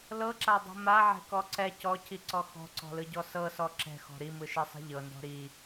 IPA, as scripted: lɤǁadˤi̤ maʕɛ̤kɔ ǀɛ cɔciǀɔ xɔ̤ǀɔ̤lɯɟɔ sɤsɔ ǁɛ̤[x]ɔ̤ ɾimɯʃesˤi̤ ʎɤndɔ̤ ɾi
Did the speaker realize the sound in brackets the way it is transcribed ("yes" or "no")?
yes